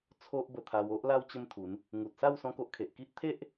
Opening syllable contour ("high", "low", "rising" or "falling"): high